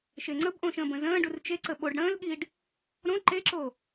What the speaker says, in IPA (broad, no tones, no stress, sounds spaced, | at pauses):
ʃ e ŋ͡ǀ ə b ʔ õː ʃ ə̃ː b ə̃ z ə̃ː ɖ u r t͡ʃ e ǀ ə ɓ o ɖ ɽ ə̃ː l ɠ iː ɖ | ɾ õ ǃ e ǁ oː